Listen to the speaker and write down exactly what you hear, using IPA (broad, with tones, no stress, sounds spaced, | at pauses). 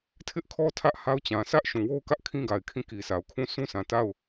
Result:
tʰ ɪ˦ ʔ kʰ ɔ˦ tʰ ä˦ ʔ h a˦ ʊ̯ t͡ɕ ã˨ s ä˦ ʔ ʃ ũ˨ w o˦ ʊ̯ k ä˦ ʔ kʰ ĩ˦ ɡ a˨ ɪ̯ kʰ ĩ˦˨ k i˨ s a˨ ʊ̯ kʰ ũ˦˨ s ũ˦ sʰ ã˨ t a˦˨ ʊ̯